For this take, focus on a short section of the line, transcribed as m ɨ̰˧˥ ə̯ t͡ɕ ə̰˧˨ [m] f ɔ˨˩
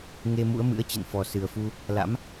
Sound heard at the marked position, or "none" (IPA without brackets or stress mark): n